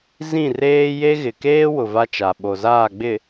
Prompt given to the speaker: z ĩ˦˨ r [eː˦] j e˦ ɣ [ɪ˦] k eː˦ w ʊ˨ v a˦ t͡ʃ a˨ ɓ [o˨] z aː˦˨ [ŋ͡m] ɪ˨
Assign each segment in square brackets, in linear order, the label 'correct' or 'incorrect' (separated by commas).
correct, incorrect, correct, incorrect